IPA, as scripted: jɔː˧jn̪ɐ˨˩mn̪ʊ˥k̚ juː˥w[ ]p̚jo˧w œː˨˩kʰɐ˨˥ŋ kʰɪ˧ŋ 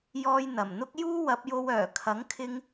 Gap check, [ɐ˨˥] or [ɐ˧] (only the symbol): ɐ˨˥